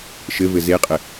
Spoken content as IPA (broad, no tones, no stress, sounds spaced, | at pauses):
ʃ ɘ v ɘ z e qʼ ɘ